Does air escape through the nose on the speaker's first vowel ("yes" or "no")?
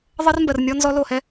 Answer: no